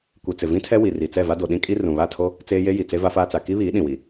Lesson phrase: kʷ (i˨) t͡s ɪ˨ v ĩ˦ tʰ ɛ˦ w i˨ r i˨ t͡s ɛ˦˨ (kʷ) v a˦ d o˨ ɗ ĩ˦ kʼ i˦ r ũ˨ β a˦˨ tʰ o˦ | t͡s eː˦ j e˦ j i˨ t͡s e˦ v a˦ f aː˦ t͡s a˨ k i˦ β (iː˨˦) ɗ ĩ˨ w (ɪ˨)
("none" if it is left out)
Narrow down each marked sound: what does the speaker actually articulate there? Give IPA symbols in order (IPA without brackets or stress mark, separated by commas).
i˨, none, iː˨˦, i˨